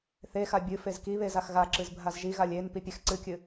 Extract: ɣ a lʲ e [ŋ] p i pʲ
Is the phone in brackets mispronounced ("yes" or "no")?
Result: yes